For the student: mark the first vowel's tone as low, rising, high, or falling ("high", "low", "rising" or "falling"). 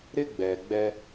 high